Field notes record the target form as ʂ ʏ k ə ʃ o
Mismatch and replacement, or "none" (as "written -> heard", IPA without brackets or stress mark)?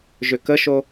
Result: ʂ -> ʒ